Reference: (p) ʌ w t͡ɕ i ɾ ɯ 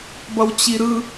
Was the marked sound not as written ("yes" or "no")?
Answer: yes